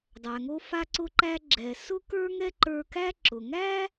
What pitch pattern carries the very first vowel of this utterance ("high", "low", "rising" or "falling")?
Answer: low